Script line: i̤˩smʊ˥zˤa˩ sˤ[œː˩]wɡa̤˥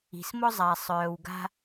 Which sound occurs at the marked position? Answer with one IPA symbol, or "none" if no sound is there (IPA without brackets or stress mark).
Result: œː˩